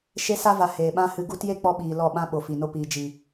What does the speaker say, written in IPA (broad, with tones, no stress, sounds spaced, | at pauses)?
ʃ e˧ s a˧ v a˨ h eː˨ ɓ ã˦ h ɨ˧ ɡ u˦ t j e˦ k͡p ɔ˧ ɓ iː˨ l ɔ˦˨ ɓ ã˦ ɓ o˨ f i˨ n o˧ p iː˨ d͡ʒ i˨